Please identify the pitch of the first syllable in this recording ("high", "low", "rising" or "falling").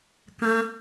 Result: high